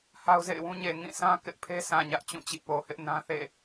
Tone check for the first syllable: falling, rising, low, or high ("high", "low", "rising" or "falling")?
high